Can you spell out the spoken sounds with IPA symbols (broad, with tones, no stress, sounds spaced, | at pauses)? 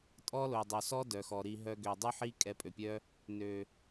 tʼ ɔ˦ l o˨ dˤ o˨ s ɔ˦ d œ˨ x ɔ˨ ɾ i˧ ɦ œ˧ ɡ ø˨ dˤ ʉ˦ ħ i˦ kʼ ɛ˧ pʼ ø˨ pʲ œ˦ | n ø˨